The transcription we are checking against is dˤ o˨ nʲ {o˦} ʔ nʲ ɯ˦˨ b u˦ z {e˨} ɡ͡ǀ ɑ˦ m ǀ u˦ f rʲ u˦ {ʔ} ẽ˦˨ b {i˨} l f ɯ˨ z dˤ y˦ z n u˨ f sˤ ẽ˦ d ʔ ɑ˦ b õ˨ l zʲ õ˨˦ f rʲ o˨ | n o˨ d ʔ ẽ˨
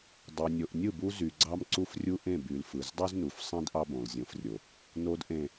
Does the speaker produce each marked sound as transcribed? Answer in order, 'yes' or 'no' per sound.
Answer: no, no, yes, no

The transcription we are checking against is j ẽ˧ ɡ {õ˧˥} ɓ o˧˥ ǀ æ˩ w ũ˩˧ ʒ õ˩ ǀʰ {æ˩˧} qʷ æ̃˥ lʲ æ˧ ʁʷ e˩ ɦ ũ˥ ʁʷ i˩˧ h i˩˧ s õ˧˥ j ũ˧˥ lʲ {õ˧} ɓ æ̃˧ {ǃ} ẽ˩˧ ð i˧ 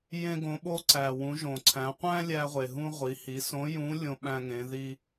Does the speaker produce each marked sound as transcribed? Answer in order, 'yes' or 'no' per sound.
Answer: no, no, yes, no

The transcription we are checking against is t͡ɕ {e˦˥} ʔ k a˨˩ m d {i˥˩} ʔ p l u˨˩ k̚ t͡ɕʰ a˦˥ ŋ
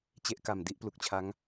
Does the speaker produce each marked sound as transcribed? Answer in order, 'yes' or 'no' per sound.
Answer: yes, no

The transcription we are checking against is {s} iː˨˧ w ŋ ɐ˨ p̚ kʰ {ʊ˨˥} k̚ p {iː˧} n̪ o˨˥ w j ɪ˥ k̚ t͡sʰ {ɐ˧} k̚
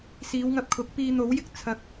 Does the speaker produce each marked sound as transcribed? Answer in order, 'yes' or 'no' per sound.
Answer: yes, yes, yes, no

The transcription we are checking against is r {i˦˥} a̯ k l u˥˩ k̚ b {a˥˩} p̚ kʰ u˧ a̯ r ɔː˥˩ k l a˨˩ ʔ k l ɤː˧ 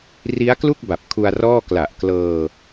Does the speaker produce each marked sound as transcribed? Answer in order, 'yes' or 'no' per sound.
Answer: yes, no

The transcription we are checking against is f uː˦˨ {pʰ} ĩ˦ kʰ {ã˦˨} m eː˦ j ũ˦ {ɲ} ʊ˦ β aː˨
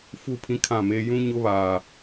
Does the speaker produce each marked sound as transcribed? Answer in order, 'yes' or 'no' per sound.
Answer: yes, yes, yes

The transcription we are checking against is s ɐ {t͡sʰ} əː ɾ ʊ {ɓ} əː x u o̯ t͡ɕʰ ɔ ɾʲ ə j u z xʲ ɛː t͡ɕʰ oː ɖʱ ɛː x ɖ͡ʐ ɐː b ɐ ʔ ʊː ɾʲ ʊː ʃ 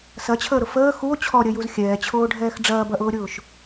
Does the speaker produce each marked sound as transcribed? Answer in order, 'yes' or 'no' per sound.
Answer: no, no

